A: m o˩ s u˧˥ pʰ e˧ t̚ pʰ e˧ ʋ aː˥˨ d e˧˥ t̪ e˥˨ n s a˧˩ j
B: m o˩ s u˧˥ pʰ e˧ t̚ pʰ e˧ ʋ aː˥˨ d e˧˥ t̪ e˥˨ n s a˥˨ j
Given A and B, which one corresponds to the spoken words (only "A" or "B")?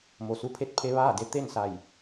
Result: A